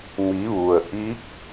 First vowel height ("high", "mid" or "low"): high